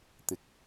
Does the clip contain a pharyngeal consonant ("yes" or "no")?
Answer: no